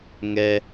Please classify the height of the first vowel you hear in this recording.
mid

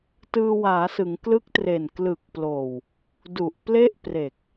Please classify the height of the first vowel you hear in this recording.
high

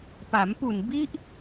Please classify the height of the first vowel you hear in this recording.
low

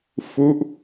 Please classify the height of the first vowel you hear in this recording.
high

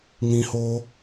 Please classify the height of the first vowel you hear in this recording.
high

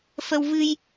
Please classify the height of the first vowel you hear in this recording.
mid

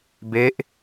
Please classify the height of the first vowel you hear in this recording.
mid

